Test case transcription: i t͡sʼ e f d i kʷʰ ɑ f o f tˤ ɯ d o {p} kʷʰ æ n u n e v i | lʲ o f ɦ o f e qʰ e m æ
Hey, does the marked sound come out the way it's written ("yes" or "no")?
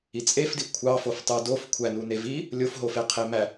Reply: no